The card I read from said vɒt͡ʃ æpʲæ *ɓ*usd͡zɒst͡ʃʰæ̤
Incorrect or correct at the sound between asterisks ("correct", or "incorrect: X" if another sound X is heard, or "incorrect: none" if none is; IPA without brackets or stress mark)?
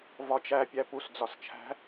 incorrect: p